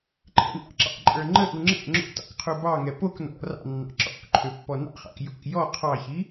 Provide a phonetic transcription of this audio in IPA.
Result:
ǃʰɛ̰nʔɑ̰ǁɑ̰ǃʼə˞ ŋ͡ǃəʔu ŋ͡ǁɛ̰ ŋ͡ǁo̰tɑ̰k qʰubɑŋɛ pok nɔ̰ rɑ̰nːɑ̰ ǁɔ̰k ǃʰøpːɔnɑ̰χɑ̰k jo̰k jɔ qʰɑçi

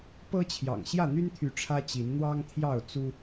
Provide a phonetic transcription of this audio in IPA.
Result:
pɤ˦t͡ɕʰjɑ̰˨˩ŋ ɕjä˥˨n̪y˦nt̪ʰy˨˦ ʈ͡ʂʰä˦ t͡ɕi˨˦n n̪wɑ˦ŋt̪ʰjɑ˥˨ʊ̯ t͡su˦

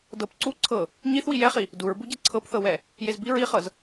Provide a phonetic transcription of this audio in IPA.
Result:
dɤp ǀu ǀʰɤ | ɲiθwi jɛχi | duɹbuɟɛ ǀʰɤpθɤwɛ | jezbi ɹiχɤz

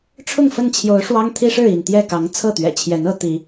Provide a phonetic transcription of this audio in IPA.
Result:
ʈ͡ʂʰʊ˥˨ŋfə˥˨nt͡ɕʰjo˨˦ʊ̯ʂwɑ˦ŋ t̪ʰi˦ʂɻ̩˥˨i˥˨n t̪jɛ˥˨kɑ˨˦ŋ t͡sʰɤ˥˨t̪ɥɛ̰˨˩t͡ɕʰjɛ˨˦nɤ˨˦ t̪i˨˦

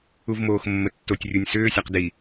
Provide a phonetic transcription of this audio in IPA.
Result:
uvmoːxmːətːotʲ rʲunʲsʏː sʲaqdi

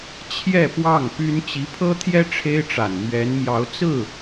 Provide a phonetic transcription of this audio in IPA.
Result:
t͡ɕʰjɛ˥˧ pwɑ˥˩ŋpy˥n t͡ɕi˧˥pʰɤ˥t̪ʰjɛ˥ ʈ͡ʂʰe˥ɪ̯ʈ͡ʂa˨˩n mɥɛ˧˥n mjɑ˧˥ʊ̯ t͡sɹ̩˥˩

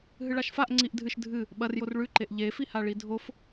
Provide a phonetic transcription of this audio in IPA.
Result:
ɦɨɭaʃfaʔ ŋ͡ǀiʔdʱɨʃ dʱɨ | ɓɐrjor ɭʉǃeʔ ʎefi haɭidʱof

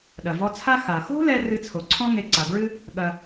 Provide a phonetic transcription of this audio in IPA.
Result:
ɗɐ˩vɔ˧t͡sʰa˥ xa˩xo̤˥ lɛ˥ rɨ˧t͡sʰo˩ǀʰɔ̃˥ ŋe˧ǀa˩bɹɨ˥ | ɠɐ˧

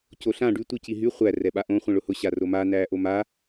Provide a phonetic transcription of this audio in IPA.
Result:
coɬã ɖy tʷiciɦy χʷæ rɛɓaʔõ χʷĩɭʊhʊ ɕaroma næːʔoma

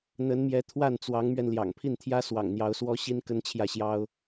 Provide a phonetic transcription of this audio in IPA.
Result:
n̪ə˧˥nmjɛ˧˥ t̪ʰwa˥˩nt͡swɑ˧˥ŋmɥɛ˧n ljɑ̰˨˩ŋpʰi˥˩nt̪ʰjä˥ swɑ̰˨˩ŋn̪jɑ˧˥ʊ̯swɔ˥ɕi˥n kə˥nt͡ɕʰjä˥˩ɕjɑ˥ʊ̯

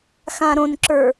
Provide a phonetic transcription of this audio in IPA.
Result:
xãɾõnǁə˞

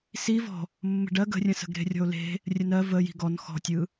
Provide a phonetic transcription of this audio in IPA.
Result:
si vɔ̤ | mːə̤ɖɜ ɡə̤rʲə̃sə̤ɡɾe̤ rʲɔ̤o̯le̤ | rʲənɜ vəji̤ ɡɔn xɔ̤tʲɯ

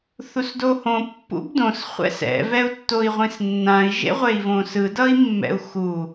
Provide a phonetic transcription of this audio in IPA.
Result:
θusdohõ pːṵbdõs χʷɛ̰sɛ̰ vɛu̯tːoi̯ʁʷĩsnːãi̯ ʒḛʁʷei̯võsɯ dʌi̯mːɛ̰u̯xu

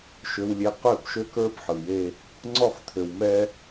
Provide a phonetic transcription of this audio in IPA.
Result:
ʃø˨wlʲe˨ qø˦˨bʃø˦kə˞˦b ħɯ˨je˦ | ŋ͡ǀɔ˦˨χt̪ʰø˨w mɛ˦

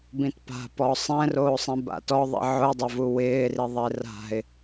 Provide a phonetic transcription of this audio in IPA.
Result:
bĩtpa̤pɔ sˤɛ̃roːsˤĩ ba̰tɔ ðˤḭʕʊɪ̯dˤevu wɪːriðˤe ra̤ɪ̯

